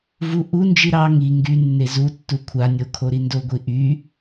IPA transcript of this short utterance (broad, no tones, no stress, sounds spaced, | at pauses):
v u ʔ u n d͡ʒ i ɾ ɑ ŋ i ŋ ɡ y nː e z u tː u kʷʰ a nʲ o kʰ o ɾ i n d o ɡʷ i ʔ y